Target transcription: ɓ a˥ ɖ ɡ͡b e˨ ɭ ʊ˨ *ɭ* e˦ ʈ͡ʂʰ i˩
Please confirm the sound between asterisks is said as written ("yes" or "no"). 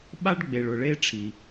yes